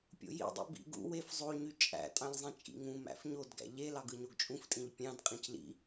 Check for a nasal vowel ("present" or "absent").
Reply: present